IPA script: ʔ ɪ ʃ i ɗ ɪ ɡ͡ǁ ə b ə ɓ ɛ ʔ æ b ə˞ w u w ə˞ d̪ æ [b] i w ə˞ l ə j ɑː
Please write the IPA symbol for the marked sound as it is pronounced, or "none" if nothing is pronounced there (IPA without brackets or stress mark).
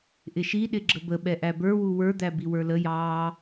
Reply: b